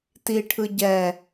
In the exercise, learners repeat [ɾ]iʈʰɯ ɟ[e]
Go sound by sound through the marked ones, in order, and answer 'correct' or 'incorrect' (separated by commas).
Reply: incorrect, incorrect